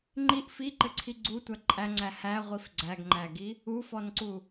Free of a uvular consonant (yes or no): no